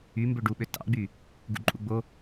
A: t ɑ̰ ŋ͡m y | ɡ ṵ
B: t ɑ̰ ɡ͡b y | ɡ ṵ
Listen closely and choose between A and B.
B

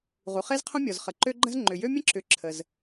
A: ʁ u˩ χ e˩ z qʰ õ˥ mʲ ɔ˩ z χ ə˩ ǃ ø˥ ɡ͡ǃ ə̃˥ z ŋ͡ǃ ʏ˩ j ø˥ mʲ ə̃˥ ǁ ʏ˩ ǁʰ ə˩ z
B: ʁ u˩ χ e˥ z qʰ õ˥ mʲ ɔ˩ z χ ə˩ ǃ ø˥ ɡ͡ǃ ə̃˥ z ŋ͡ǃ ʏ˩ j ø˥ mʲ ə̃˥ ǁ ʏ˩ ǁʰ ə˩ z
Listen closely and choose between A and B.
B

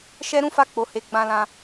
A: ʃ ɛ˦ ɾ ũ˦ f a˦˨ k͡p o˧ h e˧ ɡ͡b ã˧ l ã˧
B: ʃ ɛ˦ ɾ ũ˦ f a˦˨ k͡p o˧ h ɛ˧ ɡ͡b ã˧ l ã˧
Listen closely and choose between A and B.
A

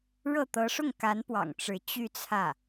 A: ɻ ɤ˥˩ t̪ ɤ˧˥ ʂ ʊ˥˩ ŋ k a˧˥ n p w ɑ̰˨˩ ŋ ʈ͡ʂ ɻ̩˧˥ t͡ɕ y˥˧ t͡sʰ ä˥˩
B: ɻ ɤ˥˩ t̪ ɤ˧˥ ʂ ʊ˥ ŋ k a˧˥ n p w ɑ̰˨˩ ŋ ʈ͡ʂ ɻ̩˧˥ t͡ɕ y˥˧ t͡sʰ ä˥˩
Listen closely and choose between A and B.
A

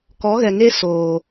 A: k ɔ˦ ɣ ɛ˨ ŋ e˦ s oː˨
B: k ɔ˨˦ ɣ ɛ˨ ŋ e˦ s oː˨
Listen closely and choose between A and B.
B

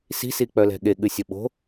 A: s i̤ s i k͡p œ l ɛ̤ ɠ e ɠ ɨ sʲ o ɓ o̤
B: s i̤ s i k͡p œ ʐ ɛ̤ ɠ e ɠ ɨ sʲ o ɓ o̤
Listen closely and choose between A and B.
A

